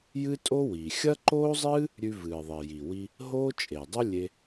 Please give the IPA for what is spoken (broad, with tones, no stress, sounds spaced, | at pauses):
j ɨ˥ tʼ o˥ w i˩ xʲ ɐ˥ ǃ oː˥ zˤ ɨː˥ | ɾʲ ʉ˧ v ɨː˩ ðˤ e˩ j i˩ w i˧ | ɦ oː˥ t͡ʃʼ e˩ dˤ o˥ lʲ e˧